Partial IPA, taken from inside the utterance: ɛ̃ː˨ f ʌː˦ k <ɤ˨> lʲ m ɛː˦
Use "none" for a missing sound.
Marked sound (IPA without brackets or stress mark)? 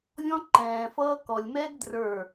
ɔ˨